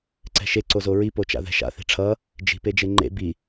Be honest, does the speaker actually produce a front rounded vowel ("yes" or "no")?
no